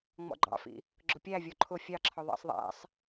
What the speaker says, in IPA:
ŋ͡m ɔ̰ ɡ͡ǃ ɑ̰ f ḭ | ɡ͡ǁ ʊ pʲ æ vʲ ɔ ǃʰ ʊ fʲ ɑ ǁʰ ɔ ðˤ ɑ̰ sˤ ðˤ æ̰ sˤ

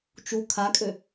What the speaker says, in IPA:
t͡ʃ u kʰ a kʼ ø

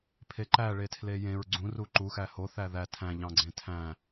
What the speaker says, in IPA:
pʰ e ǃ æ ɭ e tʰ l e j ẽ ɹ ɡ͡ǀ ũ r u ǃ u x æ h o θ æ ð æ tʰ æ̃ ʎ ɑ̃ ɡ͡ǀ ẽ tʰ æ̃

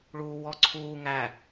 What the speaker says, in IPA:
ɭ uː w ɔ ǀʰ uː ŋ æ

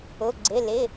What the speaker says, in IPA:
ʊ˩˧˩ ɡ͡ǀ ɪ˩˧˩ l ɪ˩˧˩

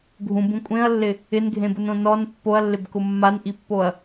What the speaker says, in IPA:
ɡʱ ũ b ũ kʷʼ ẽ ɐ̯ lː ɪ | ɪ n ɡʱ ẽ b ʊ n õ n ɔ n pː o ɐ̯ lː ɪ b k ʊ mː a n ʔ i pː o ɐ̯

